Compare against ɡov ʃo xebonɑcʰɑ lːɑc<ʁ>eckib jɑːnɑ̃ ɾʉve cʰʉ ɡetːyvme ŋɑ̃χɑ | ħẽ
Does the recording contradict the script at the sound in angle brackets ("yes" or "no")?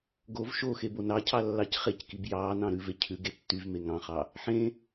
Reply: yes